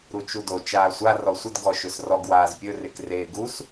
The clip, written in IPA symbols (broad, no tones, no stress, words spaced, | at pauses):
ɾut͡ʃudo t͡ʃaːsʷa rɔsʷəd ɡɔʃɵsrɔɡ waːzpʲɵrek reːɡus